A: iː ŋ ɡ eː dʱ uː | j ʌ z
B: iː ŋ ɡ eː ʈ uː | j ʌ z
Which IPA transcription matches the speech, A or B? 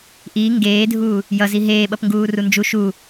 A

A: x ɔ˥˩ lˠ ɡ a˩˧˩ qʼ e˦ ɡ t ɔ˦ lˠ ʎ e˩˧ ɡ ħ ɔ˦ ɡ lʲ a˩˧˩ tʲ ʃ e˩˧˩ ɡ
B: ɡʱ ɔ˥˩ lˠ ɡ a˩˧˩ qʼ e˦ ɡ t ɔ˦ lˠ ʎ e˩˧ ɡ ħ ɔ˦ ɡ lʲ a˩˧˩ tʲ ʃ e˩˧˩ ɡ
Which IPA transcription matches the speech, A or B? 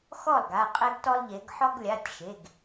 A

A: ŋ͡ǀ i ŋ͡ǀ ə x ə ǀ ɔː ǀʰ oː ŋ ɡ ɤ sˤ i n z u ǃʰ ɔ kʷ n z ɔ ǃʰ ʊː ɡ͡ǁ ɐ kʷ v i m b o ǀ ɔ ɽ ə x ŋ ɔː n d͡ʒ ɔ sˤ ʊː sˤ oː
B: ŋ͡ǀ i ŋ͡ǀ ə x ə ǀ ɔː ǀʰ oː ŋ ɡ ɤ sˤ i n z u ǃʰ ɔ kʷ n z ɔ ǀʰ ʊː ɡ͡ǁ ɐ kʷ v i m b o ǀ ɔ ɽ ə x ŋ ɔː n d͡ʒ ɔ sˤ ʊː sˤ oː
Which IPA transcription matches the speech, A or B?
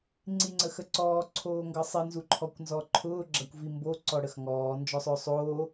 A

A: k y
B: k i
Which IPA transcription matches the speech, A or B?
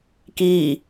B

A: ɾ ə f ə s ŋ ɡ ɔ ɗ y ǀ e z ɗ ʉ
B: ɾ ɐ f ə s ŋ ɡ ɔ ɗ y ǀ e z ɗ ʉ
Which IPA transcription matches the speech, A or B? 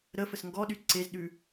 A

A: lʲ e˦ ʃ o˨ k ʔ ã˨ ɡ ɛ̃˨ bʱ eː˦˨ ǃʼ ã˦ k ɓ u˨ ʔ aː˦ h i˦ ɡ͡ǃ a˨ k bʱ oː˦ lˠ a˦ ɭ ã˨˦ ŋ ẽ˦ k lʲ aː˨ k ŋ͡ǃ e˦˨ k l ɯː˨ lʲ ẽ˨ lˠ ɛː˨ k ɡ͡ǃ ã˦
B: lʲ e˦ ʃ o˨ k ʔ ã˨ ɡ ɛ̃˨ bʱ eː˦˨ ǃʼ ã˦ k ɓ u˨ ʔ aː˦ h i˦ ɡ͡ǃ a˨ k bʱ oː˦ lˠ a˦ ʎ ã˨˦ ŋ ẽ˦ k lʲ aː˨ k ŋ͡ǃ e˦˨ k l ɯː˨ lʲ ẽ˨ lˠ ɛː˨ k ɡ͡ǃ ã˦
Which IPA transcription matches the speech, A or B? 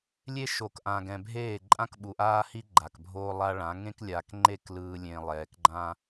A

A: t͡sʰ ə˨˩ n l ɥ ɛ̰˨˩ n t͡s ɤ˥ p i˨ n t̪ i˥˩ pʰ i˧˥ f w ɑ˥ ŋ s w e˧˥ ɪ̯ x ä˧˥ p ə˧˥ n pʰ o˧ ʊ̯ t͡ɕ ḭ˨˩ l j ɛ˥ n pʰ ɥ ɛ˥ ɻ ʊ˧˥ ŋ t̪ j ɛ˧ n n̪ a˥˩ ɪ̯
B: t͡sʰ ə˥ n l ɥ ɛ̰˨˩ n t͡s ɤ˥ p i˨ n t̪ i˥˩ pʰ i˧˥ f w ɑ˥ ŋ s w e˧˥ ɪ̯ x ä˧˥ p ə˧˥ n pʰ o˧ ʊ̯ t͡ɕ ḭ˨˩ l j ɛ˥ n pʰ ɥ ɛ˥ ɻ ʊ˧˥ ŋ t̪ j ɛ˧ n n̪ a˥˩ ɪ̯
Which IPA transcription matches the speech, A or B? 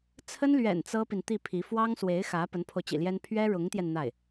B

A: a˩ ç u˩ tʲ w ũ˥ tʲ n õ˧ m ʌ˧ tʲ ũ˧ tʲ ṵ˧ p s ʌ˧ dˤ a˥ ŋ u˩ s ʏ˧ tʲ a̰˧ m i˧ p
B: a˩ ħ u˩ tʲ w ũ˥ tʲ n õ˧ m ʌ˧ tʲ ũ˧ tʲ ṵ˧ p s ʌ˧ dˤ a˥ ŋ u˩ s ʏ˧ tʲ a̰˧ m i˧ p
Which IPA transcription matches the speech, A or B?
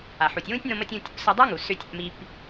B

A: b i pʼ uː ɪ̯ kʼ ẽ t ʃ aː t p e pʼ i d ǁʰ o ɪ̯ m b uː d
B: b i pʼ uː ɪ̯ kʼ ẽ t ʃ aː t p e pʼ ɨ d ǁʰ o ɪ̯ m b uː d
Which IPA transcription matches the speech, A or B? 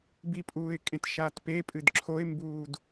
B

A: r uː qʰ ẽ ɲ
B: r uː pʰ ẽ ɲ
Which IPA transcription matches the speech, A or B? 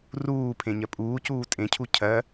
B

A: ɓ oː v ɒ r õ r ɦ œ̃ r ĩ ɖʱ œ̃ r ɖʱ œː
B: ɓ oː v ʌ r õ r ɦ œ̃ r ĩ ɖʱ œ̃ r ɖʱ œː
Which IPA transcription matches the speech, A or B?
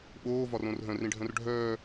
A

